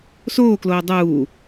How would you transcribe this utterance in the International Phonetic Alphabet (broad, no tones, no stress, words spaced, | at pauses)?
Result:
soːkloː dˤuː